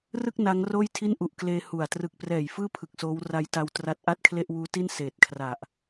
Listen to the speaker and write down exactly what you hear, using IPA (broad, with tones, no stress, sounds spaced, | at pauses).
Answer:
r ɯ˥˩ k̚ n a˦˥ ŋ r oː˥˩ j tʰ i˥˩ n ʔ u˨˩ ʔ k l eː˧ h u˨˩ a̯ t r ɯ˨˩ k̚ p r ɛː˨˩ j f ɯː˥˩ pʰ ɯ˨˩ k̚ s oː˦˥ w r a˦˥ j t a˧ w t r a˦˥ t̚ ʔ a˥˩ t̚ kʰ l e˥˩ ʔ w uː˦˥ t i˥˩ n s eː˨˩ t̚ kʰ r a˨˩ ʔ